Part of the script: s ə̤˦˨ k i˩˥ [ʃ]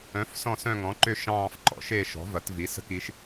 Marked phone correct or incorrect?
correct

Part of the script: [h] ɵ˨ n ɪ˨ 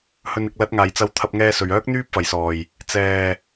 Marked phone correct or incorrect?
correct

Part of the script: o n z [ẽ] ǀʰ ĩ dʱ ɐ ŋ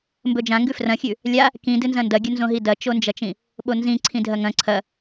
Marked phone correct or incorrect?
incorrect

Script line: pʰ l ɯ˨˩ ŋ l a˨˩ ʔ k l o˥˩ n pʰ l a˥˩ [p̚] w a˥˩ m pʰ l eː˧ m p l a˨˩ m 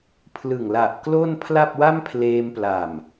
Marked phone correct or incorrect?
correct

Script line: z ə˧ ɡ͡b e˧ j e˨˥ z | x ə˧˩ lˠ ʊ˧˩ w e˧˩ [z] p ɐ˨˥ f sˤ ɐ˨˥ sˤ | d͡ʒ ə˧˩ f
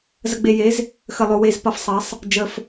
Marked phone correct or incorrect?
correct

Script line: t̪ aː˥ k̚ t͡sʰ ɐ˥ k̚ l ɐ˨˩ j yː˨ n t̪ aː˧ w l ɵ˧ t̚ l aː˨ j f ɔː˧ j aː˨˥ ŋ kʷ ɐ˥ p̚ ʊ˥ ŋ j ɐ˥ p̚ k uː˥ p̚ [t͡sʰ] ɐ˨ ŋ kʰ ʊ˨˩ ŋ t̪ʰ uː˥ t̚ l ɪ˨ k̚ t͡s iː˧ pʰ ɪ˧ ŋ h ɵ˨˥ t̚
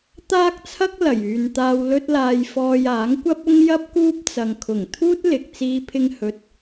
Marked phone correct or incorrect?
incorrect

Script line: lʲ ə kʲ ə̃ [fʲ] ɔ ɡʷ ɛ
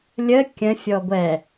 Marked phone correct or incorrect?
correct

